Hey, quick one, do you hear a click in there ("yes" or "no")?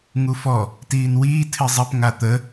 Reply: no